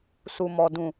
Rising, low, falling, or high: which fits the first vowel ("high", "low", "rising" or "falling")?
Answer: low